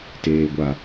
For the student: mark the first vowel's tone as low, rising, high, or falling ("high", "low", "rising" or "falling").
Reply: low